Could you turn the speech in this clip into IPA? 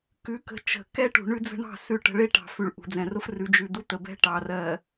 kʉ˨˦kə̤˨ t͡ʃə̤˨ kɛ˦ʈṳ˨ ɳʉ˦d͡zə̤˦ɳɑ̤˦˨ sʉ˦˨ʈə̤˦ ɭe˦ʈɑ̤˨fʉ˨ɭ ʔṳ˨d͡zɛ̃˨rʊ˦f rʉ˨ d͡ʒʉ˨ d̪u˦t̪ə˨bɛ̤˦ ʈɑ˨rɜ˨

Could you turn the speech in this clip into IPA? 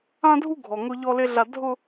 ã˦dʱu˦ ɡʱɔ˨ŋʊ˦ ʎɔ˦le˦ɮa˦ dʱʊ˦

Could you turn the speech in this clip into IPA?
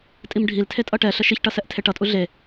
tʼimɖʱiltʰe tʼʌʈɛɬə ʃiçʈʌ sɛʔtʰeʈʌtʼu ɮe

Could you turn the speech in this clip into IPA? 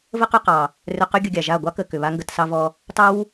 və˦qʏ˧qɑ˨ | rʏ˧qʏ˦ ɡʲə˧ɡʲa˨ʒa˦˨ ɡʷɑ˦kə˨kʏ˨ βa˦ŋɡə˧tsɑ˦ vɔ˧ | tɑ˦w

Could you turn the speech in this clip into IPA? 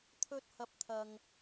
t̪ʰɵ˥t̚hɐ˧p̚t̪ʰɐ˨ŋ

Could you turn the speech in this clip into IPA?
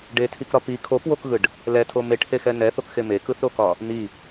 ɖetʰikɾɒ pi kʰopwokɣɯɖ | lɛtʰo meʈhexɛ nɛθokxe mekɯθɾokɒ | n̪i

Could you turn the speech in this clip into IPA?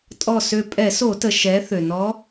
tʼɔ˧˩sø˧˩ pʼɛ˧˩˧so˧˩˧tə˩ ʃɛ˩˧ θø˩nɔ˧˥

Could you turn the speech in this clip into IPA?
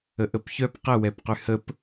əʔəpçœp qəwɛpqy həp

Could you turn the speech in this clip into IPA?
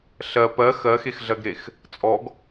ɬɜ pɜ xɜxexɮɜɡɾex | t͡sʼɔɡ

